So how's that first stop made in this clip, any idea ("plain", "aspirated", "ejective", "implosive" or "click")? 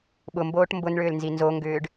implosive